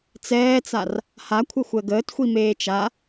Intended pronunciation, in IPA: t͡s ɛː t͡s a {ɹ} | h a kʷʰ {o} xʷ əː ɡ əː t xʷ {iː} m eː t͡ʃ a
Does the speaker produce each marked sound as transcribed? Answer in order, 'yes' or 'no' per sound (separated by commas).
no, no, no